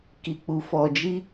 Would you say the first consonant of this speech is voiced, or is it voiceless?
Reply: voiceless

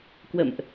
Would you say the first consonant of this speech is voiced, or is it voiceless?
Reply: voiceless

